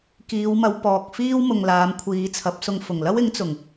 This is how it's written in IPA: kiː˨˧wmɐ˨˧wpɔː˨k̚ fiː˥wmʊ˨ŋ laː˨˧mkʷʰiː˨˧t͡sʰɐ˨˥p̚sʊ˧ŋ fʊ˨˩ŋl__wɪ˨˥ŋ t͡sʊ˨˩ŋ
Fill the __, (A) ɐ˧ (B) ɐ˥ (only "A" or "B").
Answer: B